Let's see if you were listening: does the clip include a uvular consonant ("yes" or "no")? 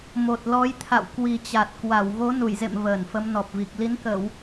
no